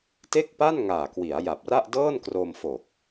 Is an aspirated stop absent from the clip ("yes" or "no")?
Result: yes